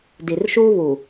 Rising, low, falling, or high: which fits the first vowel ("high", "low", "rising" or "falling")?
low